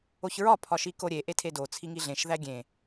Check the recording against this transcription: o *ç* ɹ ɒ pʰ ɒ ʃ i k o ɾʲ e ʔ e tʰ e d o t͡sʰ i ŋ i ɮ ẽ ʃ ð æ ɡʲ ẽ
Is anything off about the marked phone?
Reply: no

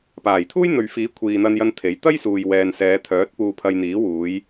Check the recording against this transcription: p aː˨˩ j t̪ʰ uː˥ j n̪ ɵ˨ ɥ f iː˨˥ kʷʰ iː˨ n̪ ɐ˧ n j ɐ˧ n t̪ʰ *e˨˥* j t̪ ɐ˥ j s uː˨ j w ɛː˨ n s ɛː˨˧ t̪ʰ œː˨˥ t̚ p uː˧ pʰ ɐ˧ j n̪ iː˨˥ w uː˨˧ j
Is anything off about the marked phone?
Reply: no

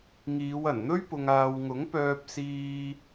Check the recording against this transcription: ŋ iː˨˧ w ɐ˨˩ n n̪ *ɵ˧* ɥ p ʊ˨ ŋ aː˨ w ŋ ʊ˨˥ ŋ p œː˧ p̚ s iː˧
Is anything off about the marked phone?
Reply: yes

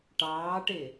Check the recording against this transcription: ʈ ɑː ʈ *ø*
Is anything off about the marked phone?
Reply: yes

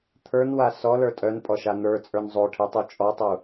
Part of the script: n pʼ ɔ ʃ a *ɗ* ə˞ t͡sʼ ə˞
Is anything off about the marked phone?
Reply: yes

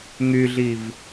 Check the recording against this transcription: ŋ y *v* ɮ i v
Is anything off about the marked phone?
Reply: yes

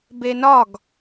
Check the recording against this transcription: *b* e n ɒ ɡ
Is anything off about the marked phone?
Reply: no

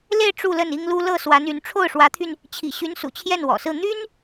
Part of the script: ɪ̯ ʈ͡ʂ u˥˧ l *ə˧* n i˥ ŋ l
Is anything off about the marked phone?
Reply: yes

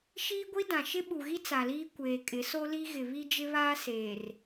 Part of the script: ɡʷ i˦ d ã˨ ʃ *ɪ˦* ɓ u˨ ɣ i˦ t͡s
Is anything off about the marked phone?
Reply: no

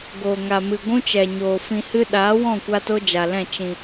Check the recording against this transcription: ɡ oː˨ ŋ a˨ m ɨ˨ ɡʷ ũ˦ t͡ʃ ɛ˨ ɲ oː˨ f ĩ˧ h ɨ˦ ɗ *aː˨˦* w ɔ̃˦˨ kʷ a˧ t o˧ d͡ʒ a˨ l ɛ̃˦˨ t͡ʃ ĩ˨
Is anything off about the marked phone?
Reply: no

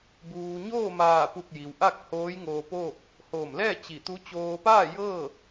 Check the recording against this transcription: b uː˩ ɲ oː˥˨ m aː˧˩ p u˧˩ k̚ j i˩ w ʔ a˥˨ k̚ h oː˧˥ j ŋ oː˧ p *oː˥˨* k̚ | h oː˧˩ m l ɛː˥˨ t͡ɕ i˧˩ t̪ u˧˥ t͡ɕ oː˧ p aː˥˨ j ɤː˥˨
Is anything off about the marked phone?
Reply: no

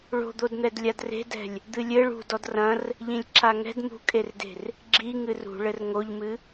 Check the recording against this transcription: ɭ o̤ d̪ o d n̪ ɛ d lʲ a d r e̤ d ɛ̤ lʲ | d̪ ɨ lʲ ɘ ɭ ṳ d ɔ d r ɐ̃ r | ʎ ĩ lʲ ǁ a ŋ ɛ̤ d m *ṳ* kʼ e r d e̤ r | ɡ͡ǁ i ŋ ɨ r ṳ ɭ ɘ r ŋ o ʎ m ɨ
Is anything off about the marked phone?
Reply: no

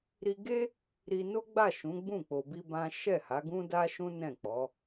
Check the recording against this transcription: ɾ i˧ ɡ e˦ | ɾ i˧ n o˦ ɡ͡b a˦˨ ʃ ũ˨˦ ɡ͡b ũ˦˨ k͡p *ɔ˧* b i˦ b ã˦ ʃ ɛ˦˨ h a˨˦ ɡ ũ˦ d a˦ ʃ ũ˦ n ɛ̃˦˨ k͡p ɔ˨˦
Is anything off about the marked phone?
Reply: yes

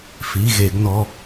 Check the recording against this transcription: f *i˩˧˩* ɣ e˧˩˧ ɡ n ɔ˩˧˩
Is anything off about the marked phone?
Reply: no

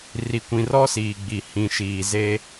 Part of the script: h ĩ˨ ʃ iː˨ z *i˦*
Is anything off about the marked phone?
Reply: yes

